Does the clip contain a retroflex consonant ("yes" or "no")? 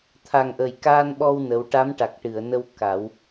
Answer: yes